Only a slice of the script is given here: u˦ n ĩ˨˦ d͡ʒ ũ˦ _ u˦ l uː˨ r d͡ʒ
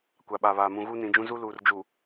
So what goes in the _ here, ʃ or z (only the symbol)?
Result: z